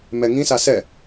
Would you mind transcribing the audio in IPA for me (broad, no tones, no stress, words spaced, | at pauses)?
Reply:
mɛŋĩsa sɛ